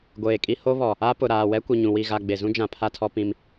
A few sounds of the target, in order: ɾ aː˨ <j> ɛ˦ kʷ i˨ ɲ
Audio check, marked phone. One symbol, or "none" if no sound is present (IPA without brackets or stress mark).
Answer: w